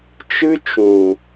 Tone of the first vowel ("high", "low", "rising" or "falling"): high